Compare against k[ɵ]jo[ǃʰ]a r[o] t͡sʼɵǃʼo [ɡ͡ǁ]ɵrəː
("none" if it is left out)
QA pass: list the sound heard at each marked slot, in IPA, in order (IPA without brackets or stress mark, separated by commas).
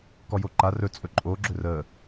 ɔ, ǃ, ɵ, ɡ͡ǁ